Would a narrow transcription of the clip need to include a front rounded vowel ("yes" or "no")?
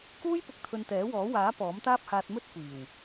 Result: no